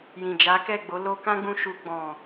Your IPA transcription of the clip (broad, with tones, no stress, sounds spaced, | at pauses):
j ĩ˨ d͡ʒ a˨˦ k ɛ˦˨ ɡ͡b o˨˦ l o˧ k ã˦ ɡ͡b ũ˧ ʃ u˧ ɡ͡b ɔ̃˨